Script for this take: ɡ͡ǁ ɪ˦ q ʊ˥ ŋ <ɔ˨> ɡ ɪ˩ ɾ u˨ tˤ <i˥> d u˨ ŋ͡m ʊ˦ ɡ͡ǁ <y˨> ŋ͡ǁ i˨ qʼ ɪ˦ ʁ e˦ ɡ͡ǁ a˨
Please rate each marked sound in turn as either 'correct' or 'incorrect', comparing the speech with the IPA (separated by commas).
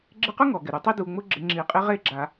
incorrect, incorrect, incorrect